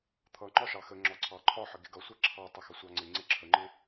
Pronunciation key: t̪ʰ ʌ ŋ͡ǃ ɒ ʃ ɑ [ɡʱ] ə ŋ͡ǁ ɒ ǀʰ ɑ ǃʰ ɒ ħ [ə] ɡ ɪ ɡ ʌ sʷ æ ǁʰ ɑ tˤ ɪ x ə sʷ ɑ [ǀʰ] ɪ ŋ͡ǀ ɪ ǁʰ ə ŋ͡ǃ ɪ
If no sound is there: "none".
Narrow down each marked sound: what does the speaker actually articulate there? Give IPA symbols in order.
x, ə, ŋ͡ǀ

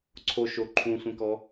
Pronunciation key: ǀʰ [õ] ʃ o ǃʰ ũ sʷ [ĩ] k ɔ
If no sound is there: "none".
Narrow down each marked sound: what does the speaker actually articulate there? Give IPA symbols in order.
o, ẽ

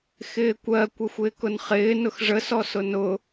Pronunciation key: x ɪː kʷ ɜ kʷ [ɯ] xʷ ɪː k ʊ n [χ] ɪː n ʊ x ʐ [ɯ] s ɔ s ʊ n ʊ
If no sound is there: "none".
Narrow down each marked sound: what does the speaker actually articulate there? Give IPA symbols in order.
ə, χ, ə

